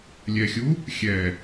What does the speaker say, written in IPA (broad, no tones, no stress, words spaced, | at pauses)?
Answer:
lʲɛxʲu | xʲɛ